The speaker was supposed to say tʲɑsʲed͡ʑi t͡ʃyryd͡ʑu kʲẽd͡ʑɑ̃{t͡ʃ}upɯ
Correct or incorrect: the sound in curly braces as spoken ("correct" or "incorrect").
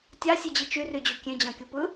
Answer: incorrect